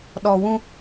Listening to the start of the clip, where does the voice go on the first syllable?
low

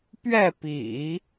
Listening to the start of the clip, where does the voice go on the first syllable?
falling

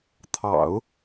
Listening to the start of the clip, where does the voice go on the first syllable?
low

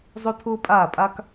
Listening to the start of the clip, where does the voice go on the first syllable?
high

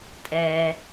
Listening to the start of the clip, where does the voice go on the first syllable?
high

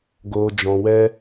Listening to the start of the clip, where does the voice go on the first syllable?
low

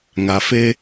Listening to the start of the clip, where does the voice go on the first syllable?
low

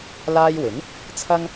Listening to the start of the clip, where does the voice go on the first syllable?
high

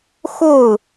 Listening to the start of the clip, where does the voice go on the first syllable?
falling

